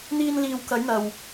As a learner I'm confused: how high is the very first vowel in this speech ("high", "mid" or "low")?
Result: high